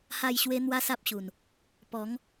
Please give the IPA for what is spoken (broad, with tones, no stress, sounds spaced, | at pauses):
h a˥˧ j ɕ w e˦ n̪ w a˦ s a˦ p̚ ɕ u˨˩ n | p ɔ˨˦ ŋ